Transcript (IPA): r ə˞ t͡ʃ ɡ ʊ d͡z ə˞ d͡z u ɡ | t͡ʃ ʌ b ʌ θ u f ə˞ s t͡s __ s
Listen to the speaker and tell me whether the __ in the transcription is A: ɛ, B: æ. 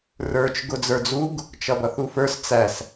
B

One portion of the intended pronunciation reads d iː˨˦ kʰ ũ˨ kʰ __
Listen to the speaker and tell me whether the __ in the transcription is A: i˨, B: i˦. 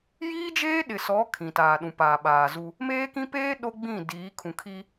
B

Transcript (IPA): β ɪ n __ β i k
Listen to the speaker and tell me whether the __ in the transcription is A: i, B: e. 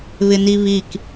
A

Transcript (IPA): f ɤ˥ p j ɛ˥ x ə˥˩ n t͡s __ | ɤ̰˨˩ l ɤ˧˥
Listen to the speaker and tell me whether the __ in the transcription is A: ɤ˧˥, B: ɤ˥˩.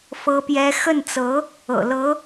A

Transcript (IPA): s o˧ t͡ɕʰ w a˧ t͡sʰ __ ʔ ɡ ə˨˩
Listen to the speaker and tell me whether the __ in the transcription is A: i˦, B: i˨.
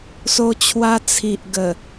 B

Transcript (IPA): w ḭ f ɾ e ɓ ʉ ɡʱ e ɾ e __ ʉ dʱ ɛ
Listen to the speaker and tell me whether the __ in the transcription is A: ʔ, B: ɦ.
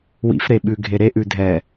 A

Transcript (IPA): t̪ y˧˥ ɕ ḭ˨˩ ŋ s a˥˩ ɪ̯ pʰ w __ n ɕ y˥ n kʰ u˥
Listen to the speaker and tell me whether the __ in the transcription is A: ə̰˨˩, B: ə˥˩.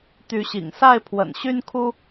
A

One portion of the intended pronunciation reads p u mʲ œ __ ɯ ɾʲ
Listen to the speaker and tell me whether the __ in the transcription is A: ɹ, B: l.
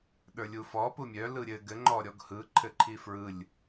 B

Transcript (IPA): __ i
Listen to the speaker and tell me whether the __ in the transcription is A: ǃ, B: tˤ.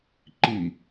A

